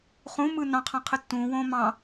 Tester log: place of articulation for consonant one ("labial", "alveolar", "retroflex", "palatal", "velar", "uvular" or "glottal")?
uvular